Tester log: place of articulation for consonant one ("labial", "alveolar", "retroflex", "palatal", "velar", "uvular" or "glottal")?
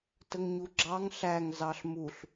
alveolar